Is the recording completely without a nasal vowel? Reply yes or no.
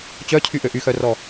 yes